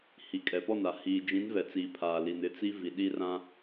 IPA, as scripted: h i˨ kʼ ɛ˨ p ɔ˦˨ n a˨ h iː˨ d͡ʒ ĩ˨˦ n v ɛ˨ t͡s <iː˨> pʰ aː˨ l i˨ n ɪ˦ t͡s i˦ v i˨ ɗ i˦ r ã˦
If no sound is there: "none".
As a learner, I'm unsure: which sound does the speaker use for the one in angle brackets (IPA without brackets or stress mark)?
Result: iː˨